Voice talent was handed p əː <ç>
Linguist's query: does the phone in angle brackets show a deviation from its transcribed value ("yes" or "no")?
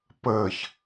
no